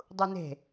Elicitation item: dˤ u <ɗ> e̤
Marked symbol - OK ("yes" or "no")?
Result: no